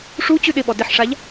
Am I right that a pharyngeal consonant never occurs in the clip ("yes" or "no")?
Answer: no